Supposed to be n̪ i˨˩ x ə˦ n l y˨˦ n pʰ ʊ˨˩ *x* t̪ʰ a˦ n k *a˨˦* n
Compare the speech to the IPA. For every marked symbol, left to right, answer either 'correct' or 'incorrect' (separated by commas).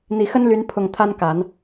incorrect, correct